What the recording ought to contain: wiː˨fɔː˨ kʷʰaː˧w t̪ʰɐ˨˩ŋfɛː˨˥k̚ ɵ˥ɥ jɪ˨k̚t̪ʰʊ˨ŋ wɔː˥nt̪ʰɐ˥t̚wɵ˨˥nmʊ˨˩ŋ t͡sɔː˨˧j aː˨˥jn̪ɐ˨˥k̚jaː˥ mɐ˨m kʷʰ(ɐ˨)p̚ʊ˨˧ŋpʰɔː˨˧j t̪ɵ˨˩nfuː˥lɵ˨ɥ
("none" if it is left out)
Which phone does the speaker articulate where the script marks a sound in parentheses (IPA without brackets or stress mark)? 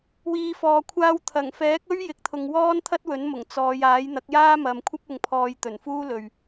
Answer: ɐ˥